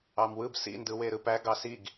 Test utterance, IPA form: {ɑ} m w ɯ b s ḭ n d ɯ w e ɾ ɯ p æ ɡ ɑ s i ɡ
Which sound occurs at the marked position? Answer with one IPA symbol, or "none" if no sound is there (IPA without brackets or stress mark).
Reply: ɑ